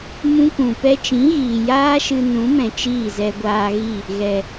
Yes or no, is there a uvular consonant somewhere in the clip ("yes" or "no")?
no